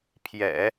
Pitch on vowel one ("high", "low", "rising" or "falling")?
low